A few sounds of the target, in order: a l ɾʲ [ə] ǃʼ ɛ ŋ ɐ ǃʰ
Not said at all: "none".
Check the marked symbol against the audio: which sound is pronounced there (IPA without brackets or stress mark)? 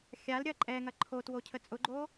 ɐ